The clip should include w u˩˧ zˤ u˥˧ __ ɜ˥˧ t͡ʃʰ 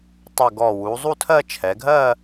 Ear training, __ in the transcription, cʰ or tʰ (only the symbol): tʰ